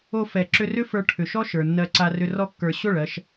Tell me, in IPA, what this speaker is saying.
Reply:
o˧ f ɛ˨ ǁ ʏ˧ r ʏ˦ f ə˞˧ ʈʰ ʏ˨ ʃ ɔ˦ ʃ ə˞˨ nː ɜ˧ ǀ a˧ r ʏ˧ r ɔ˧ kː ə˞˨ ɕ o˦˨ ɭ ɜ˧ ʃ

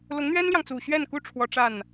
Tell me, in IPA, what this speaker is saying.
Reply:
l ʊ˧˥ ŋ n̪ ɥ ɛ˥ n l j ɑ˨ ŋ t͡s u˨˩ ɕ ɥ ɛ˥˩ n k u˥ ʈ͡ʂʰ w ɔ˧˥ ʈ͡ʂ a˥˩ n

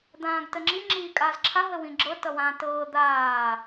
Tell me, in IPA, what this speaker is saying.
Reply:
d̪ ãː ɡ t ə ŋ͡ǁ i ŋ͡ǁ iː kʼ aː z ǁʰ a ɦ ə w ĩ ɡ͡ǁ ɤ t ʌ w ãː t ɤː d̪ aː

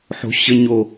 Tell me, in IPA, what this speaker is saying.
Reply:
ħ o̤ ɕ ə ɲ o

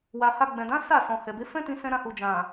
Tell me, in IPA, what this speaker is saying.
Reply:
w a˨ h a˧ ɡ͡b ɛ̃˨ d ã˨˦ s a˦˨ s ɔ̃˨ h ɛ˨ b e˨˦ f ɛ̃˦ t ĩ˧ s ɛ̃˦ ɾ ã˦ h u˧ d͡ʒ ã˨

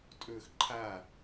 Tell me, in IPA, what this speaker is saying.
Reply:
tʼ ɵː x ǃʰ a

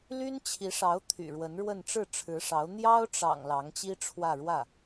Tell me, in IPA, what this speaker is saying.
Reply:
l y˥ n t͡ɕʰ i˧˥ ʂ ɑ˧˥ ʊ̯ t̪ʰ y̰˨˩ ɻ w ə˧˥ n ɻ w ə˥˧ n ʈ͡ʂ ɻ̩˥˩ ʈ͡ʂʰ ɻ̩˧˥ ʂ ɑ˧˥ ʊ̯ n̪ j ɑ˥ ʊ̯ ʈ͡ʂ ɑ̰˨˩ ŋ l ɑ˧˥ ŋ t͡ɕ i˥ ʈ͡ʂʰ w ä˥˧ ɻ w ä˥˩

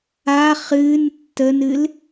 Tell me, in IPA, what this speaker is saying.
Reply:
a χ ɨ n tː ə n ɨ l

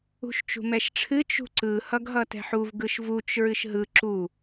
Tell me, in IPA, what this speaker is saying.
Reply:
ṳ ʃ t͡ʃ ṳ m ɛ ʃ ʈ͡ʂʰ ɨ t͡ʃ ṳ ǀ ɯ h ʌ ɡ ɦ ʌ t ɛ̤ ħ u v ɡ ɯ ʃ v u t͡ʃ ɹ ɨ ʃ ɦ ɯ ǁ u

